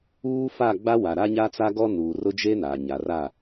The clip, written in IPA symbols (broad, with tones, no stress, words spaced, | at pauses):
uː˦fa˦˨ ɡ͡ba˦wa˨ɾa˦ɲa˦ t͡sa˦ɡɔ˦nuː˨rʊ˦ d͡ʒe˦naː˨ ɲa˨ra˦˨